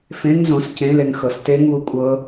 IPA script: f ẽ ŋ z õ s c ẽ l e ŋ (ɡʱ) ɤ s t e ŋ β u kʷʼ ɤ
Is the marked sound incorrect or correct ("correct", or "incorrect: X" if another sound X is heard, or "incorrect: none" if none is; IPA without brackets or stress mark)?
incorrect: x